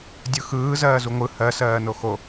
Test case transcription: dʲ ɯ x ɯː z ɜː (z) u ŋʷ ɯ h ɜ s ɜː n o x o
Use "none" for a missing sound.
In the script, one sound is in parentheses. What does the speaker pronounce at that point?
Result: z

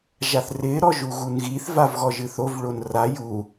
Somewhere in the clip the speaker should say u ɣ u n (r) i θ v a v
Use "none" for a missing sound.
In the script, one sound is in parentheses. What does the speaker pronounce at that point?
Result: ɣ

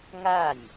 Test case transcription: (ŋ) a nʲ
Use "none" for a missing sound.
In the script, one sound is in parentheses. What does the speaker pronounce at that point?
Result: ŋ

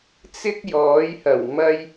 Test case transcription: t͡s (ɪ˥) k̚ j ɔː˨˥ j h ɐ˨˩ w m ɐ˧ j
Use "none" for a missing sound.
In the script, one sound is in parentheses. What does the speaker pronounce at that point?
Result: ɪ˥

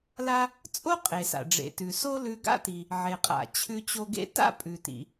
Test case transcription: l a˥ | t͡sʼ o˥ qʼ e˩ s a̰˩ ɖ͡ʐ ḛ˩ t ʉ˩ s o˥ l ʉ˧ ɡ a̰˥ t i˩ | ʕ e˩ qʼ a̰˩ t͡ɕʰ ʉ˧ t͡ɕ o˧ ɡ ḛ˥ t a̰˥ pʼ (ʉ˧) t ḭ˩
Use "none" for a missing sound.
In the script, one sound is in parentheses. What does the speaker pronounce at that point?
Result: ʉ˩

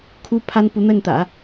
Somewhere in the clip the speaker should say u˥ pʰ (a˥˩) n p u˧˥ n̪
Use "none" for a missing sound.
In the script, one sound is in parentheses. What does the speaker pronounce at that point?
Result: a˥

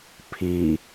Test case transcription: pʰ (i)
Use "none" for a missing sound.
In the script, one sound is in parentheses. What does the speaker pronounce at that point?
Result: i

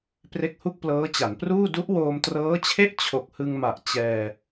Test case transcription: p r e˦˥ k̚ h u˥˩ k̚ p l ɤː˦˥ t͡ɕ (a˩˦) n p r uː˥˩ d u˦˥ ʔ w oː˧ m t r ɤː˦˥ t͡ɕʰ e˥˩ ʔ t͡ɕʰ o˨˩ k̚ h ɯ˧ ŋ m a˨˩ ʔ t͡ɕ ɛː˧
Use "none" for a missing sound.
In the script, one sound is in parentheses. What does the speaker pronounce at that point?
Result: a˩˦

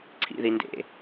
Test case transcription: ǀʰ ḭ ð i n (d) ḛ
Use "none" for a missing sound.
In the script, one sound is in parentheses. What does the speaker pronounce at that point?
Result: d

